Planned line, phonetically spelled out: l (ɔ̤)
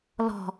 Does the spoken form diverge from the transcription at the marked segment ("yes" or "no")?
no